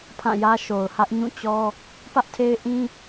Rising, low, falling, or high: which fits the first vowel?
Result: falling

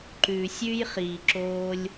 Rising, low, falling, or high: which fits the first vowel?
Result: low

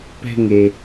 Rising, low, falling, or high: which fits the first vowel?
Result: falling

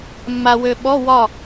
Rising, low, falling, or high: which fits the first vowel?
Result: low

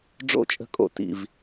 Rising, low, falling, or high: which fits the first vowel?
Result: falling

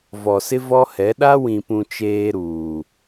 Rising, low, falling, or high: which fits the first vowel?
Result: low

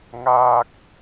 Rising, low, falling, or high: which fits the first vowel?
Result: high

